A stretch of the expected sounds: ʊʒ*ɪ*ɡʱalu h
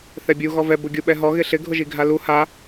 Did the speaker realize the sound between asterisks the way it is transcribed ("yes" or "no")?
no